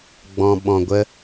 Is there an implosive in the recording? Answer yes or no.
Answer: yes